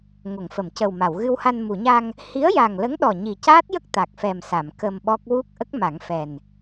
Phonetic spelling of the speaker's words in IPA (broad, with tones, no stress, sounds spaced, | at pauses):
ŋ o˨˩˨ ŋ f ə˨˩˨ m c ə˨˩ w m a˨˩˨ w ɣ ɨ˧ w h a˧ n m u˨˩˨ ɲ a˧ ŋ | h i˧˥ ə̯ j a˨˩ ŋ l ə˧˥ ŋ ɗ ɔ˨˩ ɲ i˨˩ c aː˦˥ t̚ j ə˦˥ k̚ t̪ a˨˩ k̚ f ɛ˨˩ m s a˨˩˨ m k ə˧ m ɓ ɔ˦˥ k̚ w u˦˥ k̚ ʔ ə˦˥ k̚ m a˨˩˦ ŋ f ɛ˨˩ n